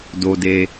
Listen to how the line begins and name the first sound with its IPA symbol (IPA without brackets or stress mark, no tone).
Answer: d